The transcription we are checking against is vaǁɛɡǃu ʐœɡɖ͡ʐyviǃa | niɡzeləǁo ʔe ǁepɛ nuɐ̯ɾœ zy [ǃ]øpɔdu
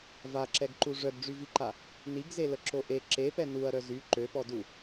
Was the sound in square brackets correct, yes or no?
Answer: yes